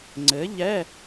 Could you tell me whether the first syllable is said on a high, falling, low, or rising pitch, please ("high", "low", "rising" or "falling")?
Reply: rising